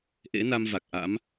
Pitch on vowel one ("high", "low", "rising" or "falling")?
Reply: rising